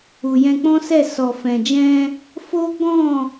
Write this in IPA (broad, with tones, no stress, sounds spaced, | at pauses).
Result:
u˨ j ɛ̃˧ k͡p ɔ̃˦ s ɛ˦˨ s ɔ˨ f ɛ̃˨ d͡ʒ ɛ̃˧ | f o˦ ɡ ɔ̃˦˨